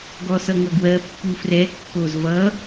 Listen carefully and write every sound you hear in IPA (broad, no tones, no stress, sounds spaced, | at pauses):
ɡ ɔ s ʌ ŋ ʌ ɡ w ɜ pː u f r ɛ kː o z v ʌ